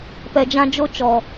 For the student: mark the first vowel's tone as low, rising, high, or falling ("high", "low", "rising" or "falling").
low